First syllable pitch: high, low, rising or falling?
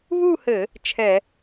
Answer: falling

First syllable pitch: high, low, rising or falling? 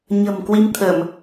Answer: low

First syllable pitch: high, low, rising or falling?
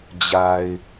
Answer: low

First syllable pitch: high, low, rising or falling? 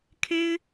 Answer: high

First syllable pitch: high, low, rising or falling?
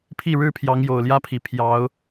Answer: falling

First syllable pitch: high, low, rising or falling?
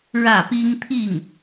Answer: falling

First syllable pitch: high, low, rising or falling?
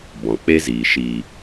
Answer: low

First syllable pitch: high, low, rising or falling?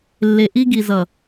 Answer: low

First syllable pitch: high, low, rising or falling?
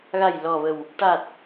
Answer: low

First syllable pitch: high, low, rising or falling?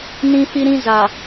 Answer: high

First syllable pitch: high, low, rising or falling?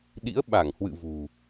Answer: rising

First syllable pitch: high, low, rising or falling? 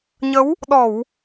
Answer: rising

